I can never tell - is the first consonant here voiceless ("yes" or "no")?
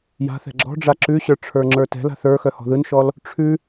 no